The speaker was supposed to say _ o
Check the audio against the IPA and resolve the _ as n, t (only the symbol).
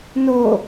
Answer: n